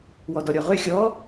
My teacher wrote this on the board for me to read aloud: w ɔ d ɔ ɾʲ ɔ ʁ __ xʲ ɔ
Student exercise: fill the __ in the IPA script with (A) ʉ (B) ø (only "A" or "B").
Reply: B